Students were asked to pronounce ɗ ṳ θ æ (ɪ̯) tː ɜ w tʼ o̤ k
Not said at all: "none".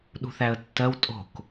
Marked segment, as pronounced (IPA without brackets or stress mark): ə̯